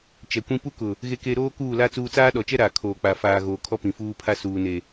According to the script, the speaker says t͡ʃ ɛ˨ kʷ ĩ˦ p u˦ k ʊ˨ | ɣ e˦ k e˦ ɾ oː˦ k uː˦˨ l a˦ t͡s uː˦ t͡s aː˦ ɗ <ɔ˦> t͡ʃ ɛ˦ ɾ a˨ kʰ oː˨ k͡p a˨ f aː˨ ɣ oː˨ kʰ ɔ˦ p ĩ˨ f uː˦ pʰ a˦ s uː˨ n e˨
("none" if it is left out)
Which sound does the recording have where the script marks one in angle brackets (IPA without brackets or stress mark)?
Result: ɔ˨